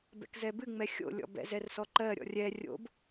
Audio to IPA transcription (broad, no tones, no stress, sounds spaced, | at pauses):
b ɛ̰ k z ɛ b ɨ ŋ͡m ɛ xʲ o̰ lʲ ɔ̰ b ɛ̰ z ɛ r s ɔ ǃ ɜ ɾʲ ɔ̰ rʲ ɛ rʲ o̰ b